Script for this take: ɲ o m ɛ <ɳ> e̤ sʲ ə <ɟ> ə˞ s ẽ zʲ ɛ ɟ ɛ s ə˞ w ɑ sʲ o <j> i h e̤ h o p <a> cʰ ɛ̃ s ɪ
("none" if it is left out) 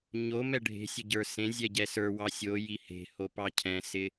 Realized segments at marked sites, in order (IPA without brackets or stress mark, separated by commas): ɖʱ, ɟ, j, ɑ